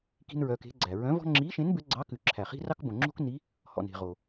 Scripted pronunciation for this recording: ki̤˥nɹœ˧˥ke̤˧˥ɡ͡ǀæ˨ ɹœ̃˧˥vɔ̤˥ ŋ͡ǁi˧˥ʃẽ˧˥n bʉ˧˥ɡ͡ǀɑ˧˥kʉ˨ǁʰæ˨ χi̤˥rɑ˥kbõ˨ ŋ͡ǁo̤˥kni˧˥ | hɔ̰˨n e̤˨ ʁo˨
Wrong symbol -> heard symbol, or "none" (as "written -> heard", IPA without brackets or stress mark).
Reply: none